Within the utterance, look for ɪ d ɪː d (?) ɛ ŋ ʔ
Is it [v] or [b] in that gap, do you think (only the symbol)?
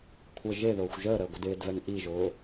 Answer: v